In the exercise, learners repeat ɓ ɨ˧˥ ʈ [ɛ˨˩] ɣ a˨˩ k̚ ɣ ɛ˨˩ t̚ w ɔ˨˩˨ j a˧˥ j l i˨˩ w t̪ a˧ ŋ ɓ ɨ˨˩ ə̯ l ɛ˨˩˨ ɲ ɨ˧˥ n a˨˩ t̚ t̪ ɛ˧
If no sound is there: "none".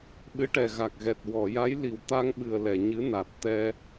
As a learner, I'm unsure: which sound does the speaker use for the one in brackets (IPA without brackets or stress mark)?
ɛ˨˩